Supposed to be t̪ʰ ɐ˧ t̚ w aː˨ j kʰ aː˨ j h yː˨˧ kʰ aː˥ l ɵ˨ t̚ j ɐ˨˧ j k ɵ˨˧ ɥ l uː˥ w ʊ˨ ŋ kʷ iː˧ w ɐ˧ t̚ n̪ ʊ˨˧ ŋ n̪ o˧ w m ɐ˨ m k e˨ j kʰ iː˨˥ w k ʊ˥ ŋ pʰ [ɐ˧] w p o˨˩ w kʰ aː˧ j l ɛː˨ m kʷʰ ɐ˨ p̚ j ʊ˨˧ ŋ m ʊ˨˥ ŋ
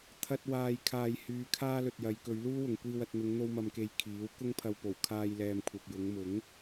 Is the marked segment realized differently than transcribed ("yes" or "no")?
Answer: no